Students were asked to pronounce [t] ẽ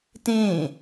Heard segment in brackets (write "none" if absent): t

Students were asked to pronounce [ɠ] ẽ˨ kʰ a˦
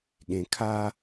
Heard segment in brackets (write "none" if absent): ɠ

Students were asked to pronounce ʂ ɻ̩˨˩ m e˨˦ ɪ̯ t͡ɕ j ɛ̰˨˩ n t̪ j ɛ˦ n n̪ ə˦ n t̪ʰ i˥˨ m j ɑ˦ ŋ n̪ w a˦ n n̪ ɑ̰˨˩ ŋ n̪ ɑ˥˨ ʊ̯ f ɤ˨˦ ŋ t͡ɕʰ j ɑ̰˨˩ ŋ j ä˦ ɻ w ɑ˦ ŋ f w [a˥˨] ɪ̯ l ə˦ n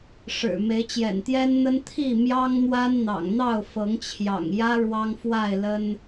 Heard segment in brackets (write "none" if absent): a˥˨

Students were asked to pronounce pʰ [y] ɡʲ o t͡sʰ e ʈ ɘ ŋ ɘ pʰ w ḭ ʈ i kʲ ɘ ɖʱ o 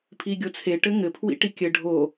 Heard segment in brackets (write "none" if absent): i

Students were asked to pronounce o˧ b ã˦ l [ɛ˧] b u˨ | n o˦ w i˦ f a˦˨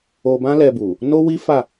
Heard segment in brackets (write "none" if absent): ɛ˧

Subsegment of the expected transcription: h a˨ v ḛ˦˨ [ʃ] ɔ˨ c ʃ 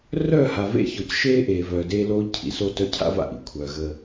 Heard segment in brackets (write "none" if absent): ç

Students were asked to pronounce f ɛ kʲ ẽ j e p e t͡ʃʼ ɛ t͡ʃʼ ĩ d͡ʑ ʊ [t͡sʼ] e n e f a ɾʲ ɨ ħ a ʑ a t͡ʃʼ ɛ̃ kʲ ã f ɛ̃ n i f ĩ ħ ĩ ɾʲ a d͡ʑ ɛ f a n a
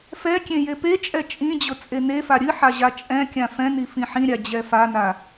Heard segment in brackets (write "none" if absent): t͡sʼ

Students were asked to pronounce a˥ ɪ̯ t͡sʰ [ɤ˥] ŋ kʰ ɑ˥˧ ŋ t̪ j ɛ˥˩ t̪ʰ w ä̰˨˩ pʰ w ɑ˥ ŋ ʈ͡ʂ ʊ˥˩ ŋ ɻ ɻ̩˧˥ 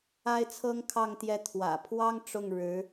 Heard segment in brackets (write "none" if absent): ɤ˥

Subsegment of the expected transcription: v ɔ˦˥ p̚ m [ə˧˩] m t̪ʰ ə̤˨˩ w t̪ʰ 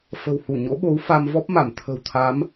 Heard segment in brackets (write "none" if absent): a˧˩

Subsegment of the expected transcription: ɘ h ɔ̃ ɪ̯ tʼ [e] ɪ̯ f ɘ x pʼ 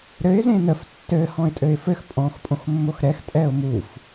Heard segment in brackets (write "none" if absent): ɘ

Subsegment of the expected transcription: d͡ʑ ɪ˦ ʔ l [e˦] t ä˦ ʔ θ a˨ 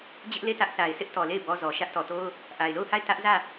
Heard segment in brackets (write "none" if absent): e˦˨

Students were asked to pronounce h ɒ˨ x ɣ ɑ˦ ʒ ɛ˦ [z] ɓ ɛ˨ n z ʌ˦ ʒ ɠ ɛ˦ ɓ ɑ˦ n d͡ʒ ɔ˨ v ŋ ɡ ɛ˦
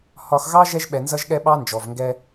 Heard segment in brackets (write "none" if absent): ʒ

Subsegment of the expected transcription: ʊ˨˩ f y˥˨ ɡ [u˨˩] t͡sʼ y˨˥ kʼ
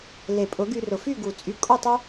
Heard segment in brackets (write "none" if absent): u˨˩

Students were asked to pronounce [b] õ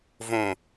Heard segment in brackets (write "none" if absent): v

